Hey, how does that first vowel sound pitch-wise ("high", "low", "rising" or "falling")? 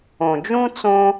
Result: low